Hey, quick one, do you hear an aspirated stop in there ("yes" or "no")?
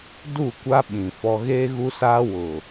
no